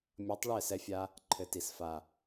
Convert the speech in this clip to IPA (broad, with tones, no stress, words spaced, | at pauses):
mʲʌ˨˦tˤ ɭɛ˦˨sɛ˧fʲa˧ | ǃʰɘ˨ ti˨s fa˨